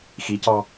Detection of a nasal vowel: absent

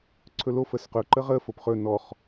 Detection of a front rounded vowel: absent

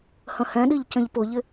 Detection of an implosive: present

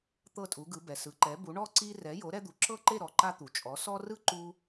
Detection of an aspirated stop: absent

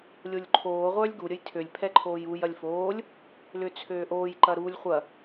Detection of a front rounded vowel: present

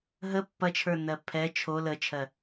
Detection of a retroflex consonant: absent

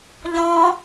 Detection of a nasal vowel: present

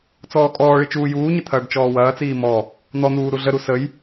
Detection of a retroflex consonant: present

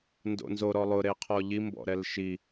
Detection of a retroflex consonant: absent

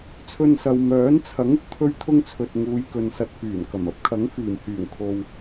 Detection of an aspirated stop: present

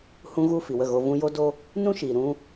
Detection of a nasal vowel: present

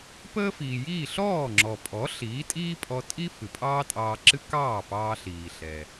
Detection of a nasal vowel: absent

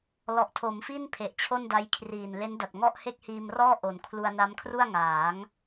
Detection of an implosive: absent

